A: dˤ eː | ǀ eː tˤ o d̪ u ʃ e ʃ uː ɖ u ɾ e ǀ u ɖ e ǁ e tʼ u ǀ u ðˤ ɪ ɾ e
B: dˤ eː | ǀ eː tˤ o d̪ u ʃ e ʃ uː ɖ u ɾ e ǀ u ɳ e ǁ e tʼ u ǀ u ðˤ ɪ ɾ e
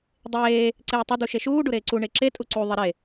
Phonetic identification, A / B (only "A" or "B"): B